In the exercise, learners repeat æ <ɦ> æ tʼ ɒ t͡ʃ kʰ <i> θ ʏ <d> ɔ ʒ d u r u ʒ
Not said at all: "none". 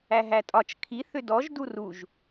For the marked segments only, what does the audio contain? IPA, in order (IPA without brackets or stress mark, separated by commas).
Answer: ɦ, i, d